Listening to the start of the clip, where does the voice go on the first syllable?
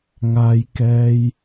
low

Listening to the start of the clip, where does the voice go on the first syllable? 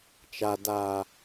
low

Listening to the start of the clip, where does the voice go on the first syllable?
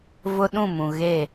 high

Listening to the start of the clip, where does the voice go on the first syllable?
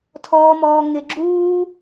high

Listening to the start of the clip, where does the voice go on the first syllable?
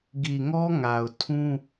low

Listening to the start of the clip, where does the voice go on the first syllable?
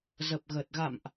low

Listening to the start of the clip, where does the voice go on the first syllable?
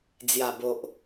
low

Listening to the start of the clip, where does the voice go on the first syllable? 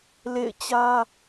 falling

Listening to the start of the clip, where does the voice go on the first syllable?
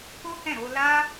high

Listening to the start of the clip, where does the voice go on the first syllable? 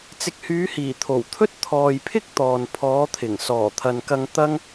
low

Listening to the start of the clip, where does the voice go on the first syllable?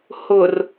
low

